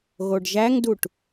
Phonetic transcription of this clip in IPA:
ɣoɖʒæŋduʈ

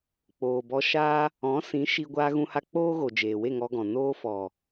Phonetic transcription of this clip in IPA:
k͡poː˨bɔ˧ʃaː˦ | ɔ̃˨˦ sĩ˨˦ʃi˧ ɡʷaː˧ɣũ˧ha˧ k͡poː˦ɣo˨ d͡ʒeː˨we˦˨ŋɔ˧ɡɔ̃˨ noː˧fɔ˨

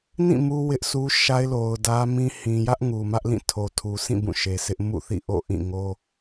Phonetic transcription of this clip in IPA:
nĩ˦˨ mu˦wɪ˦ʔsu˦ʃa˦ɪ̯ lo˨ʊ̯dä˦mĩ˦ hĩ˨jä˦ʔ ŋu˨mä˦ʔlĩ˦˨ tʰo˨tʰu˨sʰĩ˦˨ bũ˦˨ʃe˨sʰɪ˦ʔ mṵ˦˨θḭ˦˨ ʔo̰˦˨ʔĩ˦˨ŋo˦

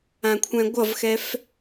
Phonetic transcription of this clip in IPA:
ãkʷʰɛ̃ɡʷʌvxɛf

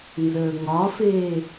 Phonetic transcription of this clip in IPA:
nzəːŋɒfeː

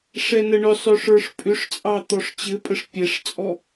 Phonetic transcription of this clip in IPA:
ʂɛnəɳʏsˤʏ ʂə˞ʂpʼʏʂt͡sʼɑ t̪ɔʂt͡ɕɘpʼəʂ pʲɛʂt͡sʼɔ

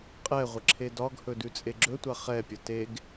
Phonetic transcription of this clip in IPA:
qʼɛʁʷə ǁʰedɒɡhɵ dʉt͡sʼeɡ͡ǁɵtʷa χɛpʲə teɡ

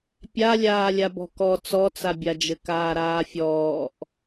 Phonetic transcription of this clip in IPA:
pʲa lʲaːlʲabɔ̤kɔ t͡sɔt͡sabʲad͡ʒɘ kaːɾaːfʲɔːʔ

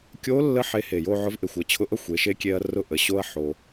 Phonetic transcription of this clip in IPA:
kʲo˧˥lːə˧˥ ħe˧he˨˩jo˥˧ʕʊ˧˥v ʔe˨˩xʷʌ˥˧t͡ɕʰʊ˧˥ʔʌ˥˧xʷ e˩˧ʃe˧˥kʲe˧ɐ̯ rʊ˥˧ʔə˩˧ɕo˥ɐ̯ ħo˧

